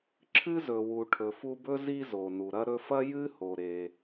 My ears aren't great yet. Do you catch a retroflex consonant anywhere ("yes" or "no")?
yes